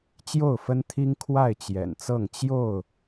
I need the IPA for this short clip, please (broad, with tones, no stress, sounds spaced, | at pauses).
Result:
t͡ɕ j o˥˨ ʊ̯ f ə˦ n t̪ʰ i˦ ŋ kʰ w a˥˨ ɪ̯ t͡ɕ j ɛ̰˨˩ n t͡s ɤ˥˨ ŋ t͡ɕ j o˥˨ ʊ̯